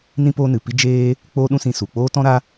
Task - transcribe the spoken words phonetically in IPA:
n ĩ˦ p oː˦ n ɨ˨ p i˦ d͡ʒ eː˦ | k͡p oː˦ ɗ ũ˦ s ĩ˧ s u˨ k͡p oː˦ t ɔ̃˦ ɾ a˦

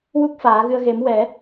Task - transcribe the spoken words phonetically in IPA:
w u˦˥ k̚ f aː˨˩˦ ɣ ɨ˧ ə̯ ɣ e˨˩˦ m w ɛ˨˩˦

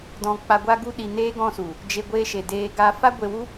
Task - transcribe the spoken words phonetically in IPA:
d ɔ̃˧ k͡p a˧ ɡʷ a˦ ɡ u˦ ɗ i˧ n eː˦ ɡ ɔ̃˧ s u˨ | d͡ʒ e˧ ɡʷ eː˧ ʃ e˨ d eː˧ ɡ a˧ f a˦ ɡʷ e˧ w u˦

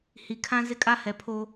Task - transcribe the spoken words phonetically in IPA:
h i˨ kʰ ã˦ z ɪ˦ kʼ a˦ h ɛ˨ pʰ o˦

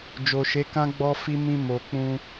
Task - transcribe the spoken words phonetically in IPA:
d͡ʒ o˨ ʃ e˨˦ k ã˦ ɡ͡b ɔ˦ f i˦ m ĩ˧ m o˨ k͡p ũ˧

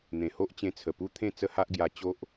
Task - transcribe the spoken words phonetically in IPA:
n̪ ẽ˨˩ h o˦ ʔ t͡ɕ ẽ˧ t͡sʰ ə˨˩ p u˦ t̪ʰ ẽ˥˧ t͡s ə˦ h a˦ ʔ ɡ j a˧ t͡ɕ o˦ ʔ

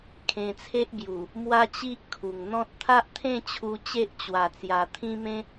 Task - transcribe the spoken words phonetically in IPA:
kʰ ẽ˧ t͡sʰ e˦ ʔ b j u˨˩ | m w a˦ t͡ɕ i˦ ʔ kʰ u˨˩ ŋ n̪ ɔ̃˦ t̚ t̪ʰ a˦ ʔ t̪ʰ ẽ˥˧ t͡ɕʰ u˧ t͡ɕ e˦ ʔ t͡ɕ w a˨˩ t͡s j a˨˩ t̪ʰ ĩ˦ m ẽ˦

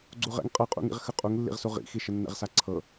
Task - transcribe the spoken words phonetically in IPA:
ɡ͡ǀ u ʁ ɛ̰ ŋ qʼ ɤ qʼ ṵ ŋ ḭ ʁ x ə qʼ u ŋ lː ḭ ʁ s u ʁ ḭ x i ʃ ə nː ɛ̰ ʁ s a ǀʰ ɤ

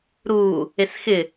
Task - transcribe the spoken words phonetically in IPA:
ɾ uː | e s x ɪ

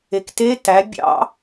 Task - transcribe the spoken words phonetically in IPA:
e k t e t æ bʲ ɑ̰

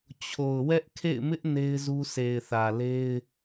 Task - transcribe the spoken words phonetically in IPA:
t͡ɕʰ o˨ ʊ̯ w ɛ˦ ʔ kʰ ḛ˦˨ ɪ̯ m ɪ˦ ʔ n e˦ ɪ̯ z u˦ s e˨ ɪ̯ θ ä˨ l e˦ ɪ̯

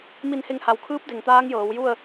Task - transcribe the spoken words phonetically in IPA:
m i˧˩ n h e˧˩ ŋ h a˩ w kʰ ɯː˧˥ p̚ d e˩ ŋ t̪ aː˧˥ ŋ j ɤː˩˧ w j u˥˨ ə̯

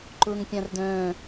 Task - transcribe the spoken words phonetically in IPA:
ǃ ʊː ŋ pʲ ã r d œ̃ː

